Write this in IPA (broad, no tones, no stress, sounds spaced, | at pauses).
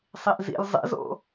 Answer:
sˤ i ʔ z ḭ lʲ zˤ ḭ z o̰